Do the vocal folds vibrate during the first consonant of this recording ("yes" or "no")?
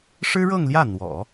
no